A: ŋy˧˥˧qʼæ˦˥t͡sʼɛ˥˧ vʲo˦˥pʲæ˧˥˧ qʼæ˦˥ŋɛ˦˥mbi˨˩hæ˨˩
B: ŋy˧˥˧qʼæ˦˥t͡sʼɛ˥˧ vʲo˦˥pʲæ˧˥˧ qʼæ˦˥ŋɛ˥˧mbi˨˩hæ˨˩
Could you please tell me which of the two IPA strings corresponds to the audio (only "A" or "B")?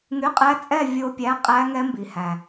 A